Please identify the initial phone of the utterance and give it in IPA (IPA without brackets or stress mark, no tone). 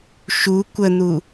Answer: ʃ